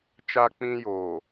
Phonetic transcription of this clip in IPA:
t͡ʃ a˦ k͡p ĩ˦ j oː˨

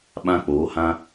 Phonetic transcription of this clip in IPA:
ɓ ã˦ k͡p oː˨˦ h ã˦

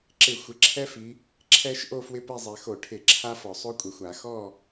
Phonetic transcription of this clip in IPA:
ǁ ɪ˧˩˧ xʷ ɪ˩˧ ǁʰ ɛ˦ f i˩˧ | ǁʰ ɛ˦ ʃ ʔ o˥˨ f w ɪ˥˨ p ɛ˥˨ zˤ ɛ˩˧ x o˧˩˧ ʈʰ ɪ˧˩˧ ǁʰ a˦ f ɔ˩ sˤ o˦ kʷʼ ɛ˩ xʷ a˧˩˧ x ɔ˥˨

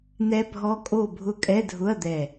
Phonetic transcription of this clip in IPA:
n̪ ɛ˦˥ bʱ ɔ˦˥ kʼ o˥˨ bʱ ʊ˦˥ kʼ ɛ˧˥˧ dʱ ʊ˧˥˧ ɐ̯ d̪ ɛ˧˩

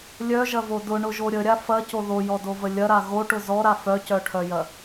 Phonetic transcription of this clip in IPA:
lʲ œ ʒ ɐ v o d ʊ ɳ ʊ ʒ o ɾʲ ə ɾʲ a f ɐ c o ð o j ɔ d o v ə lʲ ɐ ɾ a ɣ o ʈ ʊ z ɔ ɾ a f œ c œ ʈʰ œ j ɐ

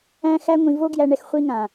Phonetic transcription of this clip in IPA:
æ̃˧ x æ˧ ŋʷ ĩ˨ v o˦ ɡ j æ˧ ɳ ɛ˧ x χʷ i˧ ŋ ã˨

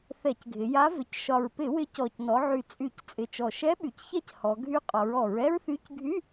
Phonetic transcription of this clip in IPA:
θ ɛ˧˩˧ c ɡʱ ɪ˩˧ j a˧˥ v ɪ˨˩ c ʃ ɒ˨˩ ɹ p ɪ˧˩˧ w ɪ˧˥ c ɔ˨˩ c n ɔ˩˧ ʕ y˨˩ t͡sʼ y˧˩˧ c t͡sʼ ɪ˨˩ t͡ʃ ɔ˨˩ ʃ ɛ˧˥ ɓ y˩˧ c ç ɛ˥ c h ɔ˩˧ ɡʱ y˧˥ qʼ ɒ˩˧ ɹ ɔ˧˩˧ ɹ ɛ˥ ɹ θ y˧˥ c ɡʱ y˧˥˧

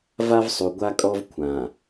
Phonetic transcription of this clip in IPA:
v a˦ v sˤ u˨ ɡʷ a˦ kʼ ɔ˦ v kʷʰ ã˨

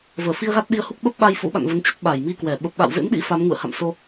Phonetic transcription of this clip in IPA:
v əː˧˩ f i˧ ə̯ ɣ a˦˥ t̚ ɗ i˧ ə̯ h u˦˥ k̚ ɓ ə˦˥ p̚ ɓ a˧ j f ṵ˧˥ ɓ a̰˧˨ n v ə˨˦ n t͡ɕ ə˦˥ t̚ ɓ a˧˩ j m i˧ k w ɛ˧˩ ɓ ə˨˩ p̚ ɓ a̰˧˨ w v ḛ˧˥ m ɗ ḭ˧˥ f a˨˦ m ŋ ṵ˧˨ ə̯ h a̰˧˨ m s o˧

